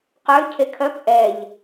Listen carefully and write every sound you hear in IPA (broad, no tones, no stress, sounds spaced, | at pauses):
q ø cʰ e kʰ œ p ʔ ɛ ʎ